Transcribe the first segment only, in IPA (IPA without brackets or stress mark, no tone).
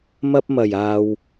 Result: m